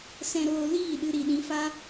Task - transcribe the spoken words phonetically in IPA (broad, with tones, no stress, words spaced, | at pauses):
sɛ̃˧ɾoː˧liː˦˨ɗɨ˧ ɾi˧ɗĩ˦ fa˦